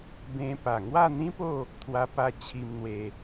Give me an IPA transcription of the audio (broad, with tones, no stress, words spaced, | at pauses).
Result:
bẽ˧ pa˨˩ŋwa˥˧ n̪ĩ˦po˥˧ | t̪ʰwa˧pa˧ t͡ɕʰi˧mn̪we˧